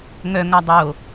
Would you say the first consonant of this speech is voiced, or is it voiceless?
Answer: voiced